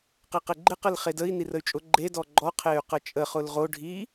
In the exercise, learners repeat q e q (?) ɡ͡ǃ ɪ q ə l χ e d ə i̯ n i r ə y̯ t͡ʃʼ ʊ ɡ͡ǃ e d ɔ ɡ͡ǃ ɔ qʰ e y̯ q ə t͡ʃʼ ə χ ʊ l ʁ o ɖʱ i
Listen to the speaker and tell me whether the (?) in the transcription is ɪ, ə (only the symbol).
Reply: ɪ